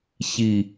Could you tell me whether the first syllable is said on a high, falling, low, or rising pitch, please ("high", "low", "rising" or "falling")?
low